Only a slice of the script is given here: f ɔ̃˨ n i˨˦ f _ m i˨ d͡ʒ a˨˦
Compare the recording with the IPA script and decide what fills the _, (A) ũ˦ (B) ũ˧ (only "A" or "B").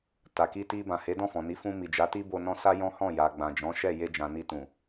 B